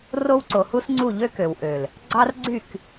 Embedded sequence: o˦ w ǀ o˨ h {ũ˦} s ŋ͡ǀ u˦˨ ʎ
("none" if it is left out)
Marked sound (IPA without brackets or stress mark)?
u˦